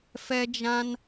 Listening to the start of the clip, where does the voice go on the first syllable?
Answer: high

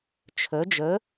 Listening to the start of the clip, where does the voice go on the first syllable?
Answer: rising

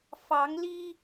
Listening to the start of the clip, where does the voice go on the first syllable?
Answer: rising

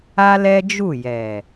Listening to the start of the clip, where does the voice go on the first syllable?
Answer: high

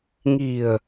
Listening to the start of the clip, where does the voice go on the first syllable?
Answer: low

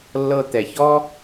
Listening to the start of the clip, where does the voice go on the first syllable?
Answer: high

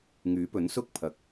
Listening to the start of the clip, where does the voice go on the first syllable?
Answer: rising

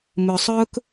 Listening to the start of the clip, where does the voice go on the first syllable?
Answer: low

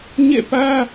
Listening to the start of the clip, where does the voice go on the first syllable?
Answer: falling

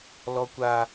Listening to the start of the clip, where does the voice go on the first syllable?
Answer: high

